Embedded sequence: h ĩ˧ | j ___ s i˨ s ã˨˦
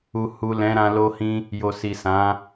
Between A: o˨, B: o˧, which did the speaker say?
A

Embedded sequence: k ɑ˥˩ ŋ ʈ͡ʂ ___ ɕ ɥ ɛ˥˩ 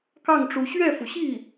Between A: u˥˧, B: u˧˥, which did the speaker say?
B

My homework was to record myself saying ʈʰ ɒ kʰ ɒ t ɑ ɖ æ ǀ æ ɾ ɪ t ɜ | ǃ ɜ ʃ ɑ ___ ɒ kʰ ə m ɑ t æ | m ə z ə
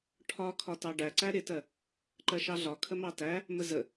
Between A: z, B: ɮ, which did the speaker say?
B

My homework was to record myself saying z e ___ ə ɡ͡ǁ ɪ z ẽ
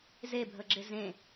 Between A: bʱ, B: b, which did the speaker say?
A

